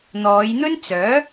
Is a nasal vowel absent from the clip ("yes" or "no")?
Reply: yes